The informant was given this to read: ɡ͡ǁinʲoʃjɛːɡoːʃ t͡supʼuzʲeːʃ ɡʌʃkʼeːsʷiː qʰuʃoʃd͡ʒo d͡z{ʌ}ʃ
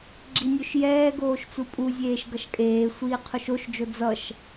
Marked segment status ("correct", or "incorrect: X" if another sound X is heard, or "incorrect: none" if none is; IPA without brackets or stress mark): correct